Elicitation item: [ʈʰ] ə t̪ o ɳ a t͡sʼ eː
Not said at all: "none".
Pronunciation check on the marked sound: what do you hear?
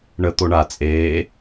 ɳ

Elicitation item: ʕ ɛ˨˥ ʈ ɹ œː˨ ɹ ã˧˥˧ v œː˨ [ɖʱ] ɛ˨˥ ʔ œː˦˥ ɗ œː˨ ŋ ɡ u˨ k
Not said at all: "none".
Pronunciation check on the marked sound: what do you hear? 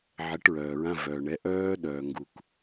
ɳ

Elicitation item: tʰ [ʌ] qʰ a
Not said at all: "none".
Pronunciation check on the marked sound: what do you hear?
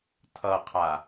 ʌ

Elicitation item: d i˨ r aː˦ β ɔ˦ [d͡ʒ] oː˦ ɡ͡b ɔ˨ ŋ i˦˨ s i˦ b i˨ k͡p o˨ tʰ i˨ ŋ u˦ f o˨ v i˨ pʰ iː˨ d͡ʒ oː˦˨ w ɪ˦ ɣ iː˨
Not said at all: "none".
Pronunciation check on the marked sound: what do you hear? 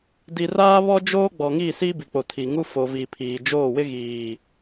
d͡ʒ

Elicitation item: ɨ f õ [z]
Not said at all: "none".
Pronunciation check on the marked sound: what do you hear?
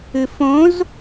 z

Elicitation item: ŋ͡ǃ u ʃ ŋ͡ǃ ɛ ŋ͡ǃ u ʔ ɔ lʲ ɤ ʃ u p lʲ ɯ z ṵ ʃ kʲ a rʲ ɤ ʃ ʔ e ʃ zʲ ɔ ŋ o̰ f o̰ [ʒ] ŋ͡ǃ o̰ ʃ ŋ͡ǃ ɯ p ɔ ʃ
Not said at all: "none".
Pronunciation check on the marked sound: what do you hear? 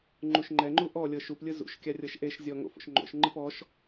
ʃ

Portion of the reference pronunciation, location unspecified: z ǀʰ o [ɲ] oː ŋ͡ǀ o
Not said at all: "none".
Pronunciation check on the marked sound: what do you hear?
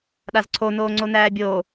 n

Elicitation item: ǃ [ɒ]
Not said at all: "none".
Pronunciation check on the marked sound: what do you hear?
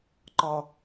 ɒ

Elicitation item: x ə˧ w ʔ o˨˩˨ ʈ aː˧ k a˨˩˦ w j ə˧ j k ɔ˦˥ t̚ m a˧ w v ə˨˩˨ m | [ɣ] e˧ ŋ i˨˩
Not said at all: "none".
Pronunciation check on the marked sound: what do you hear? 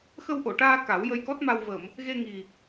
ɣ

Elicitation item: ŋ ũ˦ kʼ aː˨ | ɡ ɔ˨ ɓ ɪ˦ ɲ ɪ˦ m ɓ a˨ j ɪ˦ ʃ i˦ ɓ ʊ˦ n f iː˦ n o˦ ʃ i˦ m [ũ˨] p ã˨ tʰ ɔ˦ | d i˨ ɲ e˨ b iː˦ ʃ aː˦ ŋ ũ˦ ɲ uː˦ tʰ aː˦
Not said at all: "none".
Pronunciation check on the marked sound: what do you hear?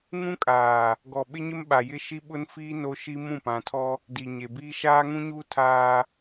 ũ˦˨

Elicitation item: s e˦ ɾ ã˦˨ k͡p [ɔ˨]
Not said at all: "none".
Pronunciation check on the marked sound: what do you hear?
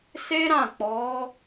ɔ˨˦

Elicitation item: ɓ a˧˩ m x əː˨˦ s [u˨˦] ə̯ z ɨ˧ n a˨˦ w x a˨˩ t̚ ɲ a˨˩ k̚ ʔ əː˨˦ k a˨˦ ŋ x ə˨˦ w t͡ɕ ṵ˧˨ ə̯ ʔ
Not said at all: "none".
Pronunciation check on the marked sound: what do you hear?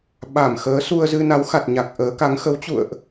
u˧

